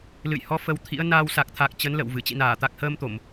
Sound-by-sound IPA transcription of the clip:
l ɨ̰˧˨ j h ɔ˨˦ f ə˧ w t̪ʰ ḭ˧˥ ə̯ n aː˧ w s a˨˩ k̚ t̪ʰ a˨˩ k̚ t͡ɕ ə˨˦ n l ə̰˧˨ w v ɨ˧˩ t͡ɕ ḭ˧˨ n aː˧˩ t̪ a˨˩ k̚ h əː˧ m t̪ o˧˩˨ m

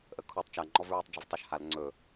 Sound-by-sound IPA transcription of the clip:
ʔ ə kʰ u tˤ t͡ʃ a ŋ͡ǃ ɔ v ɹ u tˤ d͡ʒ ə v tˤ ø ʃ h a l ŋ͡ǀ ɵ

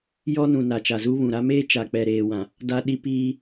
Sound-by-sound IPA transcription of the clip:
j ɔ˦ n ũ˨ n a˨ t͡ʃ a˨ z u˦ β ũ˨ ɾ a˦ m eː˦ t͡ʃ a˨ k͡p ɛ˨ ɾ eː˨ w ã˨ | d a˦ ɗ i˦ p iː˦

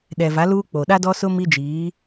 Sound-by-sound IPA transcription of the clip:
ɗ ɛ˨ v a˨˦ l uː˦ k͡p o˨ ɗ a˦ d ɔ˦ s ʊ˦ m i˦ d͡ʒ iː˨˦

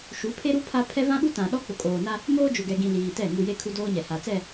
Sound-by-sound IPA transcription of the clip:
ʃ u˨˦ pʰ e˦ ɾ u˦ pʰ a˦ pʰ ɛ˦ v ã˦ ɓ u˦ t ã˨ ɗ ɔ˦ k͡p ʊ˨ kʼ oː˨ n a˦ | m oː˦ d͡ʒ ʊ˨ ɡ ɛ˨ ɡ ĩ˨ l iː˨ t ɛ˦˨ ŋ u˨ j e˦ kʰ u˦ d oː˦ ɲ ɛ˨ h a˨ t͡s ɛ˦˨

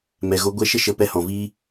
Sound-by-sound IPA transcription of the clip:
m ɛ˨ ɣ o˧ ɡʷ ɛ˧ ʃ ə˦ ʃ ə˧ p ɛ˧ h ɔ̃˨ v iː˦

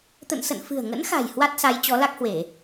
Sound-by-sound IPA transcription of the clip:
t̪ ə̰˧˨ n s ə̰˧˨ n f ɨ̤˨˩ ə̯ ŋ ə̰˧˥ n x a̤˨˩ j h w a˦˥ t̚ s a˨˦ j t͡ɕ ɔ˨˦ l a˦˥ k̚ h w e˧˩˨

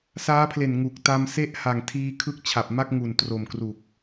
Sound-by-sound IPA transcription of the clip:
s aː˦˥ pʰ l e˨˩ n ŋ u˨˩ k̚ t a˧ m s e˥˩ ʔ h a˨˩ ŋ tʰ iː˧ kʰ ɯ˦˥ k̚ t͡ɕʰ a˨˩ p̚ m a˥˩ k̚ ŋ u˨˩ n t r o˨˩ m k r u˨˩ k̚

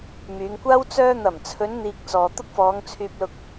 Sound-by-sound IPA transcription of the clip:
m yː˨˧ ŋ kʷ aː˥ w t͡s œː˧ n̪ ɐ˨˩ m t͡sʰ ɵ˨˧ n n̪ iː˨ k̚ t͡s ɔː˨ t̪ ʊ˥ k̚ f ɔː˨˧ ŋ t͡sʰ yː˧ p̚ l ʊ˧ k̚

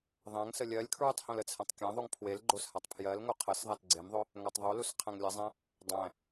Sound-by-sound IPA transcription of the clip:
ðˤ æ̃ ŋ s ə lʲ ɜ lʲ kʰ ɹ u tˤ h õ l ə t͡sʰ æ̃ tˤ kʲ æ̃ ðˤ u ŋ pʰ w e l ɡ͡ǃ o s h a tˤ pʰ j ɜ l ŋ o qʰ ə s ðˤ a t ɡ͡ǀ e m ðˤ o | ŋ æ tˤ ðˤ u l u s qʰ æ̃ ŋ lʲ ə zˤ æ̃ | dˤ æ̃

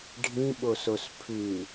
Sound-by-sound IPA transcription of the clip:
ɖʱ ĩ ɓ o s o s pʰ ʉ

